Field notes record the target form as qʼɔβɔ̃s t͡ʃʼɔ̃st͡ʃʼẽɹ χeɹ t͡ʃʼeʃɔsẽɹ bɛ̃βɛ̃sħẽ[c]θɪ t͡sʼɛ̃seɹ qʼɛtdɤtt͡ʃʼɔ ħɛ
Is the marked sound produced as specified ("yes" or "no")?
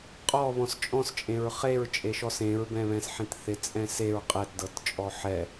no